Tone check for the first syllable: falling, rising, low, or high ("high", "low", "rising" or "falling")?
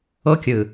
high